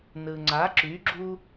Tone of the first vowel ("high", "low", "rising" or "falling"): low